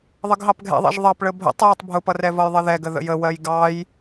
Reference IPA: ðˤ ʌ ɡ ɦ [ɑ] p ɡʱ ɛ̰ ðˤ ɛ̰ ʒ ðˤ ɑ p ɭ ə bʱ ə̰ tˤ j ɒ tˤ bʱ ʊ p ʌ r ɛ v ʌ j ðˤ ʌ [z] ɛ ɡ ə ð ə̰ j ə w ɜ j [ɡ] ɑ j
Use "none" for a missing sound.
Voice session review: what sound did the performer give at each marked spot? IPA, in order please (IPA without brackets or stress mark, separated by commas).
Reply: ɑ, ð, ɡ